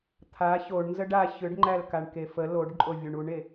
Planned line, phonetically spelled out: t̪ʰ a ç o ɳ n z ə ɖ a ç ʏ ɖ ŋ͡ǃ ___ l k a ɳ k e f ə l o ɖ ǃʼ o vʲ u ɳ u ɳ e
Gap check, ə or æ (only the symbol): æ